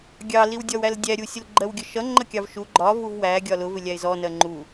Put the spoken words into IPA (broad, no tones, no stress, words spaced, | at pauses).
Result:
ɡʲɑliwdʲɒw ældʲæɾʲusʲʊl ɡ͡ǃɜwɡʲəʃʌ ŋ͡ǃəkʲɑvʃu ɡ͡ǃɒ vuvwæ ɡʲɒlʊvɪ lʲæɪ̯zɔ nɜŋ͡ǃu